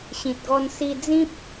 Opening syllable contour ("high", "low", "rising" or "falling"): low